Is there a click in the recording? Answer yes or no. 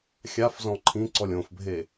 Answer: yes